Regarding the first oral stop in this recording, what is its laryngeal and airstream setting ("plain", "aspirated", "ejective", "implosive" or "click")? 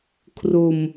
aspirated